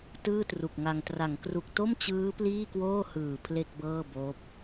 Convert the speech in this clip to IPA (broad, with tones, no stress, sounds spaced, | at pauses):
t ɯː˥˩ t r u˨˩ k̚ ŋ a˧ ŋ t r a˩˦ ŋ k r u˨˩ k̚ t o˥˩ m t͡ɕ ɯː˦˥ p l iː˥˩ k w oː˥˩ h ɯː˨˩ pʰ l e˥˩ k̚ b ɤː˥˩ b oː˦˥ p̚